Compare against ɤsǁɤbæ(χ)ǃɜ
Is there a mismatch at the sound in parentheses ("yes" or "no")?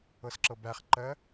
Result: no